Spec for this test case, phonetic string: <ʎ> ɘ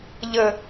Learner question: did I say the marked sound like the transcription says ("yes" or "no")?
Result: yes